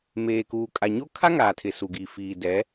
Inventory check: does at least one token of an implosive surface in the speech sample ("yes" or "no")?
no